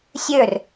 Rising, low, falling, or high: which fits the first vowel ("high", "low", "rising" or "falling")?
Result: falling